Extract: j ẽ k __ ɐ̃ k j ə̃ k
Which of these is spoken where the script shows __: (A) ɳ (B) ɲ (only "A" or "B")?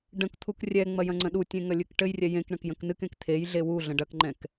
A